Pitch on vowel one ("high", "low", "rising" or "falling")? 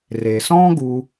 low